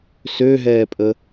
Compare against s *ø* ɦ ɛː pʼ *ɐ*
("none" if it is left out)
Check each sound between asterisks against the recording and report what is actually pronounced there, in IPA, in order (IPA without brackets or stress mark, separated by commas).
ø, ə